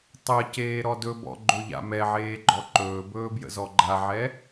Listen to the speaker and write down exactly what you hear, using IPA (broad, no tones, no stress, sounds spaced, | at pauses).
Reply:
tˤ ə c eː ɾ ɔ d ɵ b ɔ̰ ɡ͡ǃ ɵ ʎ a̰ m ɛ ʕ eː ɡ͡ǃ ɔ ǃ ɵː b ɵː b j ə̰ z ɔ ɡ͡ǃ a ʕ ɛ